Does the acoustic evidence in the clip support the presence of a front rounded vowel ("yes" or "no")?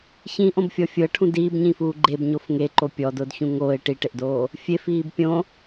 no